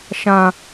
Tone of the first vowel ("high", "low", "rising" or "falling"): low